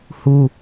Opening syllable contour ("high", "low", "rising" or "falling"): high